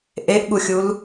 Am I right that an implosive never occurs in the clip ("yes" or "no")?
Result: no